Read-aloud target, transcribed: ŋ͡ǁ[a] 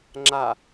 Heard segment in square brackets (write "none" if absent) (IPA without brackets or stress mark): a